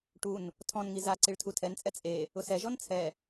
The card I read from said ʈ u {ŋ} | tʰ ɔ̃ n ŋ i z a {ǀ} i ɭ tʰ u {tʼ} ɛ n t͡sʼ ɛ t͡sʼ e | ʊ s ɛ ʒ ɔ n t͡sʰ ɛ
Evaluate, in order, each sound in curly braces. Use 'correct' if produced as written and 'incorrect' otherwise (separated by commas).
incorrect, correct, incorrect